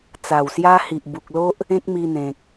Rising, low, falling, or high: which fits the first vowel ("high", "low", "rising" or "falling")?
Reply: low